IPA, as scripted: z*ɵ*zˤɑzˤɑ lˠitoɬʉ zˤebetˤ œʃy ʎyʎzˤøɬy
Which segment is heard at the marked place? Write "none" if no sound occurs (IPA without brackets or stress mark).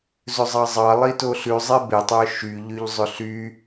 ɵ